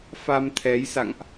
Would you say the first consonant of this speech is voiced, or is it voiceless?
voiceless